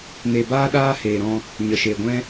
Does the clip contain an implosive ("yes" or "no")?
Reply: yes